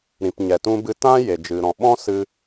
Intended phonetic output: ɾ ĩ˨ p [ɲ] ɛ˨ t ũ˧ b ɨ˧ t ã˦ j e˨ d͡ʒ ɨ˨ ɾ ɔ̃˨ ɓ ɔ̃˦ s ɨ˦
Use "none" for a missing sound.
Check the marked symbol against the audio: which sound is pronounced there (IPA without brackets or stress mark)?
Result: ɲ